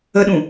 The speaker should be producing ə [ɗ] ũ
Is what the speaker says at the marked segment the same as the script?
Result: yes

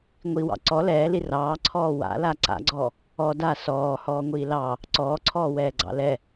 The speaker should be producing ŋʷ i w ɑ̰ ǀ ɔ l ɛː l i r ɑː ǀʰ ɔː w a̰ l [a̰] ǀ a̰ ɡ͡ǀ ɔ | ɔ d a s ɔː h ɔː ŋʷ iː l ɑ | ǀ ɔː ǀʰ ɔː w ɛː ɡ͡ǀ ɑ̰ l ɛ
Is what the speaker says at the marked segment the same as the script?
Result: no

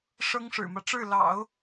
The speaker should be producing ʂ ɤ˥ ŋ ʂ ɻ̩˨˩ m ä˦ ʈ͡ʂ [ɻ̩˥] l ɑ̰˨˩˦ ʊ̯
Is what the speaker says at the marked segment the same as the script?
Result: no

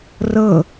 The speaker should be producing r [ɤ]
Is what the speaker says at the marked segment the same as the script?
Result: yes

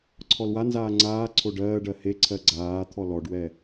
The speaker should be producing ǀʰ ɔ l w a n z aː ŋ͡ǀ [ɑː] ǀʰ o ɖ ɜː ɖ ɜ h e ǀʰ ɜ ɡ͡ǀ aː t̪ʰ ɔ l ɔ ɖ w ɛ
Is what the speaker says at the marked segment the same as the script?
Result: no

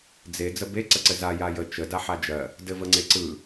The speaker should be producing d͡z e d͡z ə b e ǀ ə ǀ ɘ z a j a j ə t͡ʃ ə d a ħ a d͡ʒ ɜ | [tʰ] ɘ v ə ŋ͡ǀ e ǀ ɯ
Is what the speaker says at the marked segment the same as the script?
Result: no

